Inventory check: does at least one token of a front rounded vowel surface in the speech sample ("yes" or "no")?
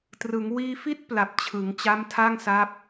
no